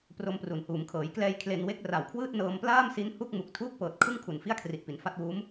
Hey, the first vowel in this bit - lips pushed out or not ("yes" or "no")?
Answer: yes